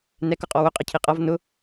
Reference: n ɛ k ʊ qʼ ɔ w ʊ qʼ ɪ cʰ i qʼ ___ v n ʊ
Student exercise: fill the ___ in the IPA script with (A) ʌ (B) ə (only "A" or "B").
A